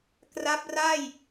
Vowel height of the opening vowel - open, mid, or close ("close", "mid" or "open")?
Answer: open